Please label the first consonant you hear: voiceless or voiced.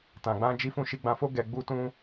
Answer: voiceless